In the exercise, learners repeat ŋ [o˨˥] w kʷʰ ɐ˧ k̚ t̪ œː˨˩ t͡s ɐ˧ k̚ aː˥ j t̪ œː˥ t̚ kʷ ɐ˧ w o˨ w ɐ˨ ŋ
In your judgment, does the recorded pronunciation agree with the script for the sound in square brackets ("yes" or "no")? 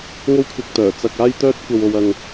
no